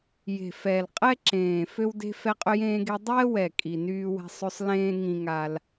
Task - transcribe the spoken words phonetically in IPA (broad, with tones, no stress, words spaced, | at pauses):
je̤˨˩fɛ˨˩lqʼɛ˦ ǁẽː˨˩fø˦wde̤˦ fɛ˦qʼø˦jẽː˦ɡe˦ dˤɛː˦wɛ˨˩ kʼi˨˩nyː˦wɛ̤˦ sˤø˦sˤ lẽː˦ ŋĩ˦ŋa˦l